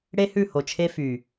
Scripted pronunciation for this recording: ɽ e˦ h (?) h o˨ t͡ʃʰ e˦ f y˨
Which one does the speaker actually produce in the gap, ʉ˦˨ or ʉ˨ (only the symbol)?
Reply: ʉ˦˨